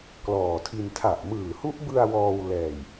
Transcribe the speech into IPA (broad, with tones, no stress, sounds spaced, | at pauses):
k l ɔː˨˩ tʰ i˧ n tʰ a˨˩ ʔ m ɯː˨˩ h u˦˥ ʔ b ɯ˧ a̯ w ɔː˧ w l ɛː˨˩ j